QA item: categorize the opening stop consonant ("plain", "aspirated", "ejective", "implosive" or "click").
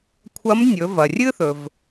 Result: aspirated